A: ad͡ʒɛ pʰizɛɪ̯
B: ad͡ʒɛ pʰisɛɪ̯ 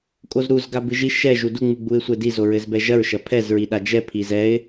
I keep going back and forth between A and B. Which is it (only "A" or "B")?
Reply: A